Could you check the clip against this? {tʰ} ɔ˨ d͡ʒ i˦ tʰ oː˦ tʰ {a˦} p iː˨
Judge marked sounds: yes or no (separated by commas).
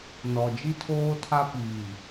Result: no, yes